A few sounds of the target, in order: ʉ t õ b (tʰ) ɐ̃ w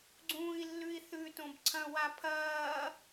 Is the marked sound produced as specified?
no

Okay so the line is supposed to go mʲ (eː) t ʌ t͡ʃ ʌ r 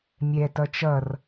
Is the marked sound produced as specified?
no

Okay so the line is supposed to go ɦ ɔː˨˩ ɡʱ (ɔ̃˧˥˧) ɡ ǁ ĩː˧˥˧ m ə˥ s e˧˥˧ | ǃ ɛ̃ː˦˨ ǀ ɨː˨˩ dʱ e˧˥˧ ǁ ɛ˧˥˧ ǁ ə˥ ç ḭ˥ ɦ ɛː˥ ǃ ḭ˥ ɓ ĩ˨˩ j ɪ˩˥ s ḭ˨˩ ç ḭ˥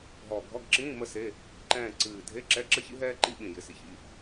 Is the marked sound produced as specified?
no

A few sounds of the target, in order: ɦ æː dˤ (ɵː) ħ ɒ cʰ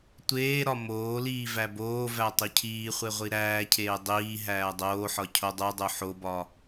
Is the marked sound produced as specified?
no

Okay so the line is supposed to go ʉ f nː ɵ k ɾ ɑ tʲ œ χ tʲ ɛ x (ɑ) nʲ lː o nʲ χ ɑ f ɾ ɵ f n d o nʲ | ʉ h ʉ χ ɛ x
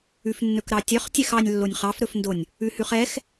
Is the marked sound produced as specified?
yes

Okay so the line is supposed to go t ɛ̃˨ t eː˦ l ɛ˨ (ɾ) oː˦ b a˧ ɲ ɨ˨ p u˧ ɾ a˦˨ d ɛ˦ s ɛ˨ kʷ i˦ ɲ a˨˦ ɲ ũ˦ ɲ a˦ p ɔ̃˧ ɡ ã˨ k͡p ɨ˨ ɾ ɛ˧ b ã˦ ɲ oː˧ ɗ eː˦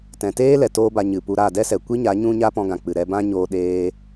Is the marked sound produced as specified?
no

